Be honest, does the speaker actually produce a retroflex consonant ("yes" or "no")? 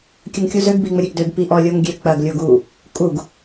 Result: no